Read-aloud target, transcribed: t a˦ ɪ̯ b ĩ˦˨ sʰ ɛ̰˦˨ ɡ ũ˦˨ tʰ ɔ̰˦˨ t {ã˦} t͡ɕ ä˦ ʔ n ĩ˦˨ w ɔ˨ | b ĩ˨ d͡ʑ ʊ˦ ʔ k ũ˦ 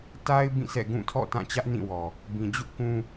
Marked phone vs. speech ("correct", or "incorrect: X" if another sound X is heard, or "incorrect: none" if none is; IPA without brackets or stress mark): incorrect: ã˦˨